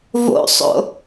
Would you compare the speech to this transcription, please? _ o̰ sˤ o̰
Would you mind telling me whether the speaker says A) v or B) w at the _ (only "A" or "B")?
A